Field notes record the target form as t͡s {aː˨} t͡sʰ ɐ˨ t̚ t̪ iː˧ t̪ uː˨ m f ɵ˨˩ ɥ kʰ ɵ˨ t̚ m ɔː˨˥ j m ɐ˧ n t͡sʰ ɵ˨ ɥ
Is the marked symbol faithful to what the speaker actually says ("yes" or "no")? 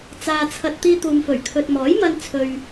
yes